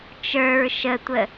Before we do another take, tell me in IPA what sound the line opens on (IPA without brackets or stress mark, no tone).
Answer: t͡ʃ